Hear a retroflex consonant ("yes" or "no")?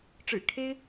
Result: yes